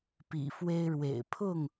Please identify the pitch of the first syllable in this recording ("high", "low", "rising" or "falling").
low